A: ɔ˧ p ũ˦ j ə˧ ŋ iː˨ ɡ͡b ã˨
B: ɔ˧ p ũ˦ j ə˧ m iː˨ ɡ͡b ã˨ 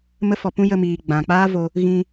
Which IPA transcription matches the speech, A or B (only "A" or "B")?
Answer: B